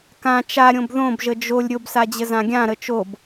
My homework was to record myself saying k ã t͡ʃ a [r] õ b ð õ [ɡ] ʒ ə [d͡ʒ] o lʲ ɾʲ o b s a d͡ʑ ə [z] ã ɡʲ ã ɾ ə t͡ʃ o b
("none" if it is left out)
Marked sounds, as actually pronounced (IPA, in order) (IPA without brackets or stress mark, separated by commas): ɾʲ, b, d͡ʒ, z